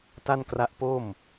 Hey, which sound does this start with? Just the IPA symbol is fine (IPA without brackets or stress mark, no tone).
t